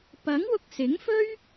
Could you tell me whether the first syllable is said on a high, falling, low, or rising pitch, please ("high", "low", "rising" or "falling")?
rising